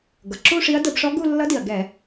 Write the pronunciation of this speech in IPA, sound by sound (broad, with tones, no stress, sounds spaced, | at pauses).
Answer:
ɡ ʌ˩ ǁ u˥˧ ʂ i˧˥ ɐ̯ d ə˧˩˧ b ʂ ɔ˧˥ ɡ u˥˧ lː ʌ˧˥ d i˩ ɐ̯ ɡ ɛ˧˩˧